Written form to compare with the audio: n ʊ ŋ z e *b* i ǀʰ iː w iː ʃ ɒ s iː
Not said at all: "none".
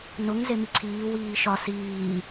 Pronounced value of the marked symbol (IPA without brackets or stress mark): m